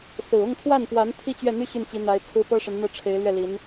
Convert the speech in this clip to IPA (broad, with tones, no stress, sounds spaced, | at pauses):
s ɹ̩˨˩ ʊ˥˧ ŋ t̪ʰ w a˥˩ n p w a˧˥ n t̪ʰ i˥ t͡ɕ ɥ ɛ˥˩ n̪ y˥ ɕ y˥˩ n t͡ɕ i˧˥ n̪ a˧˥ ɪ̯ t͡sʰ ɹ̩˥ p ɤ˥ ʂ ə˧˥ n n̪ ɤ˥˩ ʈ͡ʂʰ e˧˥ ɪ̯ l ɥ ɛ˥˩ l i˧˥ n